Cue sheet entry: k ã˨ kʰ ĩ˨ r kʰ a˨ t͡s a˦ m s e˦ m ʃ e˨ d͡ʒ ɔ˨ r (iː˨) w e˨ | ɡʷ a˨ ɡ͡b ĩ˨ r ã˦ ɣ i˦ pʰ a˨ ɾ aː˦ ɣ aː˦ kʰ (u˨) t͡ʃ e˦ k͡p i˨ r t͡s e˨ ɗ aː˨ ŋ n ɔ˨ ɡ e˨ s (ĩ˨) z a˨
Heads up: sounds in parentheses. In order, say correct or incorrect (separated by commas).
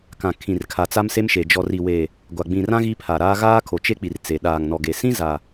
incorrect, incorrect, incorrect